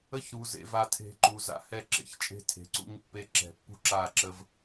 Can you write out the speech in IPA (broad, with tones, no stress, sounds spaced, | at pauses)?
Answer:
ə˦ ç ɾ u˨ z ḛ˨ v a˨ tʰ e̤˨ ǃ u˨ z a̰˨ h ɛ˦˨ ǁ ḛ˨ ç t͡ʃʼ e̤˦ tʰ e̤˨ ǀ ṵ˦ ɲ pː e˦ ǁ ɛ̤˨ pː ṳ˦ ǁ a˦˨ ǁ ə˦ v